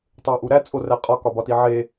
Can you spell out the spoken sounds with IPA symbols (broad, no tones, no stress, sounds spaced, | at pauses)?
tˤ e ʔ u ɾ æ t͡sʼ o r æ qʼ ɒ k ɒ b ɒ t i ʕ e